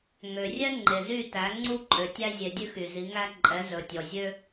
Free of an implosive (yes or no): yes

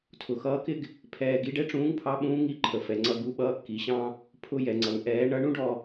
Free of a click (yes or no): no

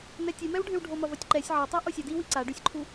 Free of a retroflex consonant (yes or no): no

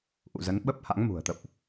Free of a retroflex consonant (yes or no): yes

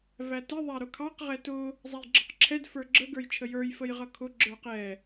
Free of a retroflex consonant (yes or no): yes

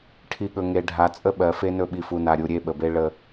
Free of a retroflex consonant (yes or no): no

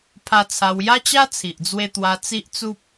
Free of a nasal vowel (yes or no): yes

